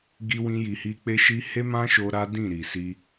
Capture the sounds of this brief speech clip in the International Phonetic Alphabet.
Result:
ɡ i˦ w ĩ˦ j i˧ h i˦ k͡p e˦ ʃ i˦ h e˦ m ã˦ ʃ o˧ ɾ a˦ d ĩ˦˨ ɾ i˨ s i˧

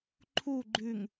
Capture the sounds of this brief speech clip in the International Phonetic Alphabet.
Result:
ǃʰ u ɡ͡ǃ ʉ ŋ

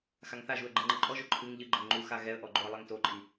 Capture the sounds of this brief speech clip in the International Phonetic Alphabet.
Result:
x a ŋ θ a ʒ u ə̯ ɡ͡ǃ ɘ ŋ͡ǃ ɘ ǃʼ ɔ ʒ o ǃʰ ɨ ŋ ʎ ɨ ɡ͡ǃ ɘ ŋ ŋ͡ǃ u x a ɣ ɛ ə̯ ʔ ɔ ɡ͡ǃ o ə̯ lˠ ɛ ŋ t o ǃʼ i

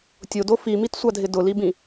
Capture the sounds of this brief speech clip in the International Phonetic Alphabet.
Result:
tʲ o d o f i m i t sʷ a dʱ ɪ d ʊ l i b ĩ

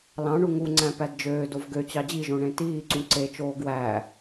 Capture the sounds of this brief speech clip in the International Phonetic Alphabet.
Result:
l ɑ̃ ɳ u ŋ u ŋ͡ǀ æ̃ p æ d d͡ʒ øː d o v ɡ ø t͡ɕ ɑ d͡ʑ i ʒ õ ɳ ẽ t iː ǀ ũ ǀ e t͡ʃ oː ɡ w æ

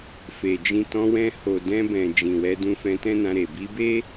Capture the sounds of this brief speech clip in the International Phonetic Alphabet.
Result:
f e˨ d͡ʒ ĩ˧ t ɔ̃˧ w ɛ̃˧ h o˨ d ɛ̃˧ b ɛ̃˨ d͡ʒ ĩ˨ w ɛ˧ d ũ˧ f ɛ̃˧ t ɛ̃˦ n ã˧ ɾ e˨ b i˧ b e˦

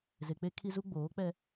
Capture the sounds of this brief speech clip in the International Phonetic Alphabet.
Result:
z e˨ k͡p e˦ kʰ i˦ z u˦ ɡ͡b oː˨˦ k͡p ɛ˦

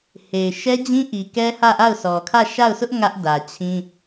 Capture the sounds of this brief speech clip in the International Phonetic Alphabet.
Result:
h e˨ ɪ̯ ʃ ɛ˦ d͡ʑ ĩ˦ ʔ i˨ k ɛ˦ h ä˦˨ ʔ a˦˨ ʊ̯ sʰ ɔ˨ kʰ ä˦˨ ʃ a˦˨ ʊ̯ s ʊ˦ ʔ ŋ ä˦ ʔ d ä˨ t͡ɕʰ ĩ˦

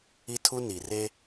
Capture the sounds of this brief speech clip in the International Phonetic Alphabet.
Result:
i˦ tʰ u˦ n i˨ r e˦

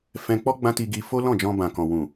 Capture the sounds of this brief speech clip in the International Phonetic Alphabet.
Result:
f ɛ̃˧ k͡p ɔ˦ ɡ͡b ã˦ t i˧ ɡ i˧ f o˦ l ɔ̃˦˨ d͡ʒ ɔ̃˧ b ã˨ k ɔ̃˨ w ũ˨

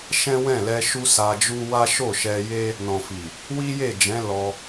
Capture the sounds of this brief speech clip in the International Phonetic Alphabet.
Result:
ʃ ɛ̃˦ w ɛ̃˦˨ l ɛ˧ ʃ u˦ s a˧ d͡ʒ u˦ w a˦ ʃ o˦˨ ʃ ɛ˧ j e˦ | n ɔ̃˨ f i˨ | w i˦ j e˦˨ d͡ʒ ɛ̃˨˦ l ɔ˧

